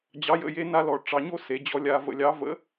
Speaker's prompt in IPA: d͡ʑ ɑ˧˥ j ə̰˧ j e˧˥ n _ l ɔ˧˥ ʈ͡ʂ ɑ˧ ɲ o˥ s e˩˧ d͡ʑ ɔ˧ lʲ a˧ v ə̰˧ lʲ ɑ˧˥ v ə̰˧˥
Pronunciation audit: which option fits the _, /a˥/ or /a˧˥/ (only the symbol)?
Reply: a˥